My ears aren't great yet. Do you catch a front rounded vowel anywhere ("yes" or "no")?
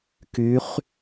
yes